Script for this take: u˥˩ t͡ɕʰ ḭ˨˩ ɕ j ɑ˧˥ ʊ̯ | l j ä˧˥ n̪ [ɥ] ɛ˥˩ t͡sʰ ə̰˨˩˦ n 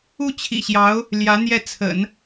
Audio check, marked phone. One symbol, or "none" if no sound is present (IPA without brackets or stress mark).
j